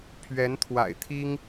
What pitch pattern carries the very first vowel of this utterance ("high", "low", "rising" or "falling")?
rising